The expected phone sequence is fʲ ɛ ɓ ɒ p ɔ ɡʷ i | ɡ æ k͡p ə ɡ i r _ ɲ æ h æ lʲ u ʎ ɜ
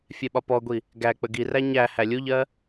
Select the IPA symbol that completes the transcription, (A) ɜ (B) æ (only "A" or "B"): B